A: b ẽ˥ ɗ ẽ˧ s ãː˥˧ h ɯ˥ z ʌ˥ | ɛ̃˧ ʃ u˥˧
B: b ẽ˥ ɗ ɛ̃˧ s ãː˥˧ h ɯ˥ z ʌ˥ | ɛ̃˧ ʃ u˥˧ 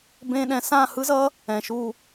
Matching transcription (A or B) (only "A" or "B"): B